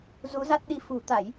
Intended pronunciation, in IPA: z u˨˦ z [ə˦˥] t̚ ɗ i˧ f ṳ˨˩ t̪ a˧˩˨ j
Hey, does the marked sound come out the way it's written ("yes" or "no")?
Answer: no